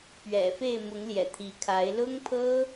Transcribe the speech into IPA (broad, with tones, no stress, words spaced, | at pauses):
pɥɛ̰˨˩fe˥˨ɪ̯ mʊ˨˦ŋ ljɛ̰˨˩t̪ʰi˨˦kʰa˨˦ɪ̯ lʊ˦ŋpʰɤ˦